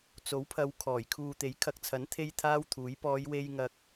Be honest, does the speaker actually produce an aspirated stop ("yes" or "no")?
yes